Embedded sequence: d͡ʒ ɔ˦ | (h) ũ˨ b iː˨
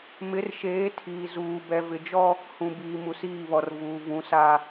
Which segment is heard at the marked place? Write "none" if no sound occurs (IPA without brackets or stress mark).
h